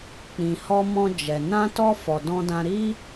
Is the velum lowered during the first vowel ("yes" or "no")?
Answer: yes